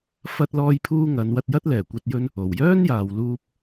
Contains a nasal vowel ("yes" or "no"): no